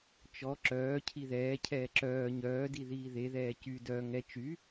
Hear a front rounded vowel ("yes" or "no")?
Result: yes